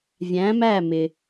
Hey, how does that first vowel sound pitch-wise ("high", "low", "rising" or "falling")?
rising